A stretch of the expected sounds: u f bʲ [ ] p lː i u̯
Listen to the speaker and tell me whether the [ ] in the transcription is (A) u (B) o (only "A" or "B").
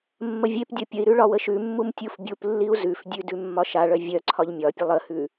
A